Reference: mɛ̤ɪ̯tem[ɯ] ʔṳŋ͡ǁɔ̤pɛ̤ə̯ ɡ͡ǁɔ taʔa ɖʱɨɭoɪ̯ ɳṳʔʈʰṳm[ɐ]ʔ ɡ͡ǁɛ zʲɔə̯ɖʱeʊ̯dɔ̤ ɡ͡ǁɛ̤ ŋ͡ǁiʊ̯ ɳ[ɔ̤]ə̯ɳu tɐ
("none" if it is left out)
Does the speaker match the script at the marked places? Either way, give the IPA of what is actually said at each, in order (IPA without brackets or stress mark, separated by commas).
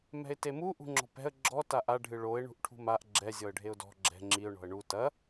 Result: u, a, ɔ̤